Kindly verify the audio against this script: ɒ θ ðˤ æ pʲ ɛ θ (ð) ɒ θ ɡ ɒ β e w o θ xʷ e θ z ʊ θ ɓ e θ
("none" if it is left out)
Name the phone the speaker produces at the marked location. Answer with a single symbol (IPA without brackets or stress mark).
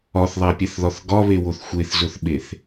ð